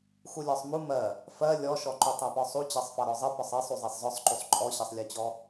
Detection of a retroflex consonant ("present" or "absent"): absent